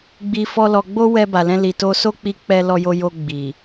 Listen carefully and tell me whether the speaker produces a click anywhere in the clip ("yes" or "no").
no